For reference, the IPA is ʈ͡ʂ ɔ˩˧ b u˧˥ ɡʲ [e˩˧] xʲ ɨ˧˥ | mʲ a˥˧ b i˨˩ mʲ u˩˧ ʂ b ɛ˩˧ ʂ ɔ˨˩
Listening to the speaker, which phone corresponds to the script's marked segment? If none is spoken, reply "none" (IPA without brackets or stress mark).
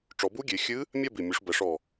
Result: e˩˧